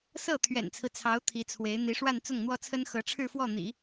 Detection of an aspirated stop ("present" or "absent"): present